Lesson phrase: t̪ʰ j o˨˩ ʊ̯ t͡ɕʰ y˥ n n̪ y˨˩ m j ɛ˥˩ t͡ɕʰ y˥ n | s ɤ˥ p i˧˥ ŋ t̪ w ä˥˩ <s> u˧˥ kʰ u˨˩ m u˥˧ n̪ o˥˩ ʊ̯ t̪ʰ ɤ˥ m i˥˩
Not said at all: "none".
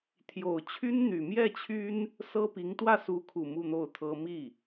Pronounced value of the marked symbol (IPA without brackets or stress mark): s